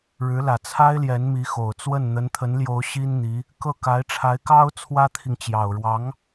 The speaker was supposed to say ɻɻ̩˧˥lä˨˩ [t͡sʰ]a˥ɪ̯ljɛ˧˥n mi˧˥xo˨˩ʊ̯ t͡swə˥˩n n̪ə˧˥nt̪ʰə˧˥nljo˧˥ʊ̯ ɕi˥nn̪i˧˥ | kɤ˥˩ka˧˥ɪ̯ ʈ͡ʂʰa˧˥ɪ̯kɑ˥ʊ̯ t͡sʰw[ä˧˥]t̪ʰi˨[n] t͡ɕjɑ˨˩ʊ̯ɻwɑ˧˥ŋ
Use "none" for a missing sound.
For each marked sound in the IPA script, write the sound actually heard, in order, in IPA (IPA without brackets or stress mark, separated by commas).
t͡sʰ, ä˥, ŋ